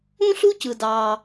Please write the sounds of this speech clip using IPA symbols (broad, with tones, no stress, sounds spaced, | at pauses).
ũ˥ ɬ u˥ c ɯ˩ d ɑ˩